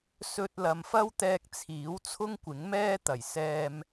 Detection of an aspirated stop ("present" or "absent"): present